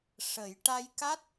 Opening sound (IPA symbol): ʂ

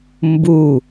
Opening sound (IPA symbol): m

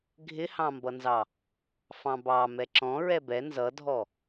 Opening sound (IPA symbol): ɡʱ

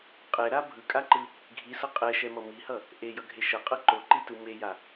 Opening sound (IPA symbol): qʼ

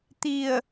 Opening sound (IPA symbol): t̪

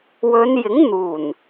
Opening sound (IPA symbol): w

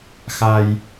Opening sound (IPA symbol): x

